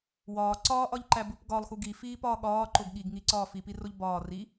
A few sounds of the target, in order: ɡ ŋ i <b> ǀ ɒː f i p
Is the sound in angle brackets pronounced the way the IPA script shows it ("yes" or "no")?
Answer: no